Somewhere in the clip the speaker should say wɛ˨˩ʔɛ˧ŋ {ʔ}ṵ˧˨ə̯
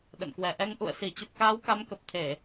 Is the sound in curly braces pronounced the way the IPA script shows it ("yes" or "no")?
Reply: yes